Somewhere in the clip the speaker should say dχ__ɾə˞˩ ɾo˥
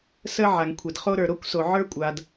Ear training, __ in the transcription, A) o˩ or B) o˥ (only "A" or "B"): B